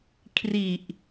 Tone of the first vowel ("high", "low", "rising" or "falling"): low